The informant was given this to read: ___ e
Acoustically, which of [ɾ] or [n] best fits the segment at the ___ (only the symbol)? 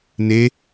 n